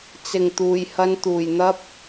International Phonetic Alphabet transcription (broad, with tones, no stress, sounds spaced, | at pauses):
t͡s ɪ˨˩ ŋ t̪ uː˨˩ j h ɐ˧ n t̪ uː˨˩ j n̪ ɐ˥ p̚